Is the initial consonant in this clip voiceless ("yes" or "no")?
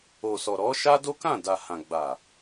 yes